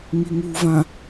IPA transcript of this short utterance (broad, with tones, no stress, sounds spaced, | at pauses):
ŋ i˨ ŋ uː˨ v ã˨